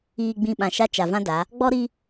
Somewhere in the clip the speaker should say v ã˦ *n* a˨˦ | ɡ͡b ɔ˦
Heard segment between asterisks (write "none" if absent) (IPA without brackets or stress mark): d